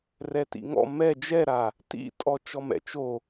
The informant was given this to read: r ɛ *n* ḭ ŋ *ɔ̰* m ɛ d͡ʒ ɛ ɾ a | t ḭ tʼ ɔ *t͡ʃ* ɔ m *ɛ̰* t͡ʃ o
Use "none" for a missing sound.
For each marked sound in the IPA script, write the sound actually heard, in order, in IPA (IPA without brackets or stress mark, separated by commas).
t, ɔ̰, t͡ʃ, ɛ̰